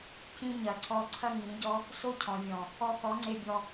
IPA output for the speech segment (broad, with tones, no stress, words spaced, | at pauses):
cĩ˦ ɲɐ˨ǀʰɔ˧ ǀʰɐ˦ŋĩ˨˦ɟɔ˦ | so˦cʰɔ̃˨vʲɔ̃˨ | ɔ˧xɔ˨˦ŋ͡ǀe˧bʲɔ˧